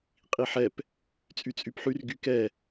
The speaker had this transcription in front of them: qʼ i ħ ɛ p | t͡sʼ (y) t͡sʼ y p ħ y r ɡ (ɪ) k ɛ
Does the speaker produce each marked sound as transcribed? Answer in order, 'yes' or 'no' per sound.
yes, no

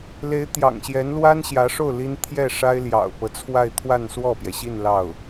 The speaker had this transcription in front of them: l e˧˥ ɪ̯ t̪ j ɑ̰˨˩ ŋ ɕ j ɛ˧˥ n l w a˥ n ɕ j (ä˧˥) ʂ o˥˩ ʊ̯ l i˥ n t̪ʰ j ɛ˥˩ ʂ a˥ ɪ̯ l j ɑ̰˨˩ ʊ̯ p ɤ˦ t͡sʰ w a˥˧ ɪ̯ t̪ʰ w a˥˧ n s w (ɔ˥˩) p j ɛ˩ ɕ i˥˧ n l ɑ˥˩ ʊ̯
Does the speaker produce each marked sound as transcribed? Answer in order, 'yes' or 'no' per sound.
yes, yes

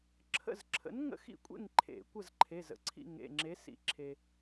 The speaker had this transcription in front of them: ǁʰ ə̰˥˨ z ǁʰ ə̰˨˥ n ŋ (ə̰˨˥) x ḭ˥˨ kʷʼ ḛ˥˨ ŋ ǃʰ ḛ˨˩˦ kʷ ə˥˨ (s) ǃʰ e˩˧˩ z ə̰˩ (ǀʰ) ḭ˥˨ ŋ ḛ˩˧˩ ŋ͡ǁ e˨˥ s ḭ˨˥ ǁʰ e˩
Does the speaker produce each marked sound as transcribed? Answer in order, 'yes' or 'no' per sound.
no, no, yes

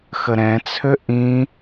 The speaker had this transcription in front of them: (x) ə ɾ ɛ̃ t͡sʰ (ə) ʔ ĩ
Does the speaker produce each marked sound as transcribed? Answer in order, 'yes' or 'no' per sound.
yes, no

